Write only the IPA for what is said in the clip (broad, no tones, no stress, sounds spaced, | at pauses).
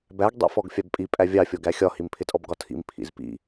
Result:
b æ ɡ dˤ ḭ f ɔ ɡ fʲ ɑ b pʼ i pʼ æ vʲ ɑ fʲ ɔ ɡ æ xʲ ɒ h i m pʰ ɪ tʼ ɔ b ɡ ɒ tʰ ḭ m pʰ ḭ z p ḭ